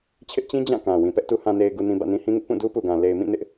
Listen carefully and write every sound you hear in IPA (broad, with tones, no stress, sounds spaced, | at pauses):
t͡ɕʰ ɪ˦ ʔ t͡ɕ ĩ˦ d͡ʑ ã˦˨ k ã˨ w ĩ˨ p ɛ˦ ʔ t u˨ h ã˨ n e˨ ɪ̯ ɡ u˨ n ĩ˨ b ä̰˦˨ n ĩ˦ h ĩ˦ ŋ ɪ˦ ʔ p ũ˦˨ d u˦ p u˨ ɡ ã˨ l e˨ ɪ̯ m ĩ˦˨ n ɪ˦ ʔ